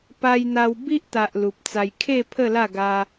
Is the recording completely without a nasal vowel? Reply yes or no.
yes